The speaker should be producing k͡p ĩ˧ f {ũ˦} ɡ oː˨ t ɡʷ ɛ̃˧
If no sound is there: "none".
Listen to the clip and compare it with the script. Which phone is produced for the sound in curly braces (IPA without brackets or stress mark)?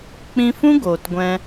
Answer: ũ˦